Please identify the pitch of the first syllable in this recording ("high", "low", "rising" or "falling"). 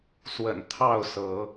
low